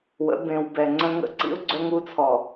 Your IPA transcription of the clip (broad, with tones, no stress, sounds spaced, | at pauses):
w ə̰˨˦ b ẽ˨ w b ɛ˨ ŋ͡ǀ ə̃˦ ŋ ə̰˦ ǀ ḭ˦ ʊ̯ ɡ͡ǀ œ˦ ŋ u˦ t͡sʰ ɔ˨